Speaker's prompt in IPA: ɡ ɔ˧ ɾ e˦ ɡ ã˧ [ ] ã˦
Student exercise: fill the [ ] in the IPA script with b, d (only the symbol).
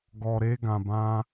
b